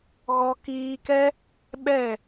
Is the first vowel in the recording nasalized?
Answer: no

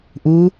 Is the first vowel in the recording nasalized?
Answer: no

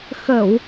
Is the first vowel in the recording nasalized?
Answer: no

